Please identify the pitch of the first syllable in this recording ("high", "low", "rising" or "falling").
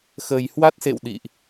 low